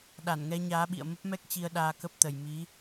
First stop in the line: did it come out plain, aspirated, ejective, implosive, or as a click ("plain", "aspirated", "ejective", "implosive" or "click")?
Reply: implosive